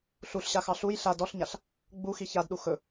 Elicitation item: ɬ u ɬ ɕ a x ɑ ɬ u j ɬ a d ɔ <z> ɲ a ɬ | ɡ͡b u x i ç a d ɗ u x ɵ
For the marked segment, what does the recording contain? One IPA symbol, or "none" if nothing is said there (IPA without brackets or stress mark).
ɬ